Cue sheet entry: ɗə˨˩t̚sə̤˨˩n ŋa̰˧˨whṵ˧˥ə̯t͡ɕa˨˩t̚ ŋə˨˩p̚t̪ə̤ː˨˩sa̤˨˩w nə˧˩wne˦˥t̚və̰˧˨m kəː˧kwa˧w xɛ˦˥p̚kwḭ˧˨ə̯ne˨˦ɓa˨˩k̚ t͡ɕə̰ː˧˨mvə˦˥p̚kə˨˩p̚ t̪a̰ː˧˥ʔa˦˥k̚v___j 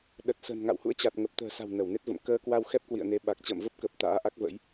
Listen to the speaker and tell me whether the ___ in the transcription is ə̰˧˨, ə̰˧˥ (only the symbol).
ə̰˧˥